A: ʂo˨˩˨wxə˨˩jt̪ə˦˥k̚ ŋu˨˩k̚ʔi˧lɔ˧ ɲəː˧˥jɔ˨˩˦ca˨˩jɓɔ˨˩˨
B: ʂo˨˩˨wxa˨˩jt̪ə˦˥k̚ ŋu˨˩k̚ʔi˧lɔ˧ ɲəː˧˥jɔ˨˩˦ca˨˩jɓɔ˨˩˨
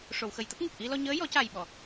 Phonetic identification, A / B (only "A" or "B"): A